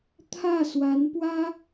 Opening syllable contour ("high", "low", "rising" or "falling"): falling